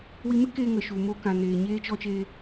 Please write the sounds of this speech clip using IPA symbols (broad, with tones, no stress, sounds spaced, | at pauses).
w i˧ m ɨ˦ k eː˧ ŋ ə˨ ʃ u˨ m o˧ k ã˨ n eː˨ ɲ eː˧ t͡ʃ ɔ˧ t͡ʃ eː˧